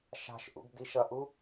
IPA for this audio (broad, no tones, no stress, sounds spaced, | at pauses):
ʃ ɑ̤ ʃ ʔ ṵ b d i ʃ ʌ ʔ u